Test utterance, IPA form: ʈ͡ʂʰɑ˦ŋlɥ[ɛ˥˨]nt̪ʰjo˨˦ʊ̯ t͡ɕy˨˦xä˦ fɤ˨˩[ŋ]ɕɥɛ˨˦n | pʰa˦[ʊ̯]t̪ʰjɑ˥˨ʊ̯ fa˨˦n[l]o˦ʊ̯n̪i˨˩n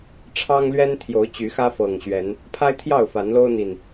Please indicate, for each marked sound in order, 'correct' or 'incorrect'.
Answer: incorrect, correct, incorrect, correct

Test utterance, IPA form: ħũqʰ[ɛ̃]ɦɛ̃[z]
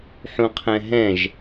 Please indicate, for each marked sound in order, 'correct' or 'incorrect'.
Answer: correct, incorrect

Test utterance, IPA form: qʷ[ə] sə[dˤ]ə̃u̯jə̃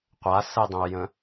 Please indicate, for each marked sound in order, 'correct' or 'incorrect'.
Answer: incorrect, correct

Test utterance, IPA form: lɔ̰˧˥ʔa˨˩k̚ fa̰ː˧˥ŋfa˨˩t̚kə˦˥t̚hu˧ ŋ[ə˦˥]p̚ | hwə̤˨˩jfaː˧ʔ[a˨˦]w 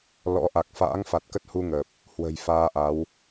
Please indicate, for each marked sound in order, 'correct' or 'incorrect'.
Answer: incorrect, correct

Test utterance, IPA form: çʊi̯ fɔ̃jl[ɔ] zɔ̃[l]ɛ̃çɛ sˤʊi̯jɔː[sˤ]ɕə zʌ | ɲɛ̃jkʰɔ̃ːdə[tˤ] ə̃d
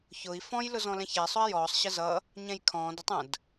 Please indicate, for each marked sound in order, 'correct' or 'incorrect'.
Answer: incorrect, correct, correct, correct

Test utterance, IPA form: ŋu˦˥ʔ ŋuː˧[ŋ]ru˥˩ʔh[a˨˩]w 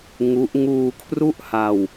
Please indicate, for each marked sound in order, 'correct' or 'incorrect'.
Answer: incorrect, incorrect

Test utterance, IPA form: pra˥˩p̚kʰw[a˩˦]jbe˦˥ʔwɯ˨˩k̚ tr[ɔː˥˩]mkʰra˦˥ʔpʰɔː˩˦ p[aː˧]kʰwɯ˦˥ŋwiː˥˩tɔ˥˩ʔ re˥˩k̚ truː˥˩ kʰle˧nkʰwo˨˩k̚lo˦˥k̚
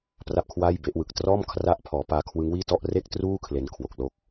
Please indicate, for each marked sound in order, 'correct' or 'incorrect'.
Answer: incorrect, correct, correct

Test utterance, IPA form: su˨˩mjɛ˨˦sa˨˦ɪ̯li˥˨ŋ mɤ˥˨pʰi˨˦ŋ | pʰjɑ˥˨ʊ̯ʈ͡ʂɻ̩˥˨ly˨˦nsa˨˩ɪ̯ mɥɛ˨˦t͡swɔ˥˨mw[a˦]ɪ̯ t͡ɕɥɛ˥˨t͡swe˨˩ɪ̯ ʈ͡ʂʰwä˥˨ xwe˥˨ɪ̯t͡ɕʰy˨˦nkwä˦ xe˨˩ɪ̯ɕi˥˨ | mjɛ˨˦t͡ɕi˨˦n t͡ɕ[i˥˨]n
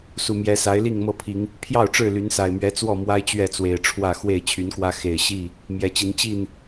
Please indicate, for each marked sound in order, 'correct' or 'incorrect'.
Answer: correct, correct

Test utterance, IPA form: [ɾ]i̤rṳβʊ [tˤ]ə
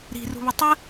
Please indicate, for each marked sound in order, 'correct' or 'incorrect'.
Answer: correct, correct

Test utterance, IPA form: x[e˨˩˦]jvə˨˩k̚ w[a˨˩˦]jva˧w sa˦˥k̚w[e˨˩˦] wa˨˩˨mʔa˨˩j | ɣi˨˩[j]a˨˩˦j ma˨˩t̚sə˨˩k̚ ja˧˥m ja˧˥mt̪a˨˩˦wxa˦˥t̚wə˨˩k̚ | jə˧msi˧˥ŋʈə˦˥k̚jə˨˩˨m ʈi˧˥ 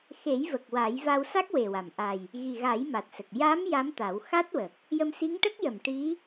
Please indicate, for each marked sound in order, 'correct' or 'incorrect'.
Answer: correct, correct, incorrect, incorrect

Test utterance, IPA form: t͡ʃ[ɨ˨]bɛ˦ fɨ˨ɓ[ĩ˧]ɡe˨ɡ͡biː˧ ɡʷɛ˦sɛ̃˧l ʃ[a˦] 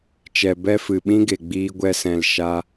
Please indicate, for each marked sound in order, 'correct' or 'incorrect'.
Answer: incorrect, incorrect, correct

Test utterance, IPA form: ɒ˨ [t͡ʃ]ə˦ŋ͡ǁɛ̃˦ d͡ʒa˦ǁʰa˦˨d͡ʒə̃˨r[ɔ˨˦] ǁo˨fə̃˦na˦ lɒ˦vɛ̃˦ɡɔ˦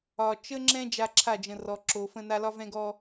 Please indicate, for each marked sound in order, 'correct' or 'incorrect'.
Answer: correct, incorrect

